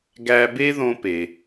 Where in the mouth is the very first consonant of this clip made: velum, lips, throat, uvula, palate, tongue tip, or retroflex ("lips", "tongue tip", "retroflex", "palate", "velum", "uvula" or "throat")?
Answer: velum